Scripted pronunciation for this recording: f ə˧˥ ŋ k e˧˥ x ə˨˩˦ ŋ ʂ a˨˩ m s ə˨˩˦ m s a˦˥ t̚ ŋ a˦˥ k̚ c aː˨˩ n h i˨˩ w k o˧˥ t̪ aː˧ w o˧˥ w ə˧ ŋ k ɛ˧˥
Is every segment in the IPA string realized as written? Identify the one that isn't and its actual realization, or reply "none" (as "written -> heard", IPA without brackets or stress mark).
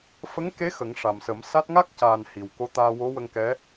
none